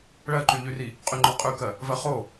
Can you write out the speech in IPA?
ɭ ɜ ǃ y ʎ y r i | qʼ y ŋ͡ǃ ɒ qʼ ʉ k ɜ | v ɜ χ o

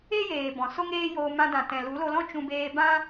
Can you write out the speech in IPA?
e˦ j eː˨ b ɔ̃˨ s o˦ ŋ eː˦ j oː˧ m ã˧ d ã˨ t ɛ̃˨ l u˨˦ l o˧ l ɔ̃˦ t͡ʃ ũ˧ b eː˧ b ã˦

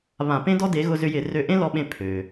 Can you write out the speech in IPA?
β ã˧˩˧ p ẽ˥ d ɔ˥ d e˨˥ ɣ ʊ˧ z ʏ˧ j ɪ˧˩˧ r ø˧ ʔ ẽ˥ l ɔ˧ ɓ ẽ˧ pʰ ø˩

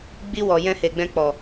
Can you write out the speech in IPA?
ɡ͡b i˧ w ɔ˨ j ɛ̃˧ h e˨ ɡ͡b ɛ̃˧ k͡p ɔ˨

